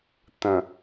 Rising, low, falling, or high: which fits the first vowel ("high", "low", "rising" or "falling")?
low